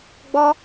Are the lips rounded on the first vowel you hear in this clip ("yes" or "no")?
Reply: yes